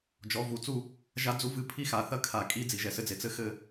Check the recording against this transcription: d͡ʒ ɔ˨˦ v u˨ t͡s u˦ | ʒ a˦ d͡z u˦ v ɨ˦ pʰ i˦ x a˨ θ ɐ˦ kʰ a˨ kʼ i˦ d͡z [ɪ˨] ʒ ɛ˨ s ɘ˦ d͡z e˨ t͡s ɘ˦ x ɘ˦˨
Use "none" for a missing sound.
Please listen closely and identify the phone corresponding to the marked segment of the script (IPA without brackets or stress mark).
i˨